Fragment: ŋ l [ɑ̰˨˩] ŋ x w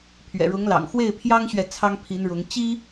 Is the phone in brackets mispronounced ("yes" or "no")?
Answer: no